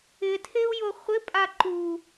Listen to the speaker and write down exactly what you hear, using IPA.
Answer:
ɪtʰeu̯jo χʷɪpʼa ǃu

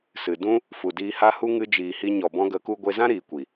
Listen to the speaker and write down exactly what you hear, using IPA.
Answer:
sɨ˨dũ˦ | fu˨diː˧ha˦ hu˦ ŋɨ˧ d͡ʒiː˨hi˧ ɲɔ˨bɔ̃˧ɡə˨˦ku˧ ɡʷe˧zã˦ ɾiː˨kʷi˨

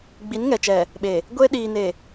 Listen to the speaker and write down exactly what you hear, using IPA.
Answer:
ɡ͡bi˨˦nŋɛ˨t͡ʃɛ˨ | ɓe˨ | ɡʷe˦ ɗiː˨ne˨

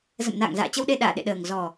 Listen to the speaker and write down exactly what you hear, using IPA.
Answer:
zə̰˧˨m na̰ː˧˨ŋza̰ː˧˨t͡ɕə˧wɗe˧ ɗa̰ː˧˨ɗḛ˧˨ɗəː˨˩ŋ zɔ˨˩

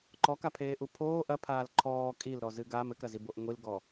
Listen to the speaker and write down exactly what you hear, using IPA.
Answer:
ǃɔkapʰeːʔu pʰoː ʔɐpʰaːl ǃʰɔː kʼilɾɔzɨ ɡam ɘkɾɐziboʔ ŋʷilɡɔ

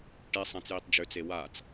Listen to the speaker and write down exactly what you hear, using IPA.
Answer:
ʈesˤãt͡sjitˤ d͡ʒʏt͡se wat͡s

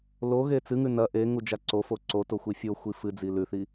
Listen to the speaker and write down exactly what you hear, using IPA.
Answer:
loɣe t͡sɨŋʉ nɐ ʔe ŋud͡ʒaǀofo ǀoto xʷifʲoxʷi fɨ d͡zilʉθi

